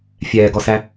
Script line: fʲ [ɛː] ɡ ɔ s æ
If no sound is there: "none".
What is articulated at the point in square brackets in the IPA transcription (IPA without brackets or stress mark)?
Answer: ɛː